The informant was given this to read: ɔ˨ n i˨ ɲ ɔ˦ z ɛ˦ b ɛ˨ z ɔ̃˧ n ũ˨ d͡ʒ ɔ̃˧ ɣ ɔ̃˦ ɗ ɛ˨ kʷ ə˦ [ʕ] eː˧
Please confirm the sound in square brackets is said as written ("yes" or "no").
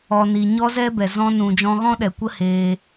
no